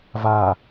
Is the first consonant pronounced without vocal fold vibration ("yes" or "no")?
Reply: no